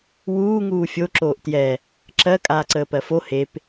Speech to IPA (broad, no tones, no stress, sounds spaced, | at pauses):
w uː ŋ uː fʲ o ǁ oː ʔ t j ɛ | ǁ ɜ kʼ aː ǀ əː p ɜ f o h e p